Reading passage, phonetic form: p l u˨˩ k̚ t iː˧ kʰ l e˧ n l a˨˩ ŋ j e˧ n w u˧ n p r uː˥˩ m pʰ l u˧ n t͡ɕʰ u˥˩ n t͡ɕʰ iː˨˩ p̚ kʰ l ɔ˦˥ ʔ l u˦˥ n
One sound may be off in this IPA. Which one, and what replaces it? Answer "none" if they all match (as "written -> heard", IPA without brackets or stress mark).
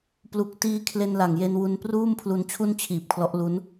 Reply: none